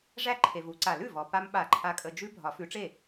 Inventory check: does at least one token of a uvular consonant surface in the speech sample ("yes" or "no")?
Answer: no